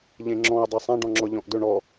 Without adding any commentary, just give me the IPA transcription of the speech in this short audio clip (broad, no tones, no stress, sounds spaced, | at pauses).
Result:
ʎ ẽ ŋ͡ǁ ɔ̃ ʊ̯ dˤ e sˤ ã ɖ ɔ̃ ŋ͡ǁ ɔ ʎ ɔ̃ ʔ d ɵ ɳ ɔ